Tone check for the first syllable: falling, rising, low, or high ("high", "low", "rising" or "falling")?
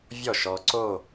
falling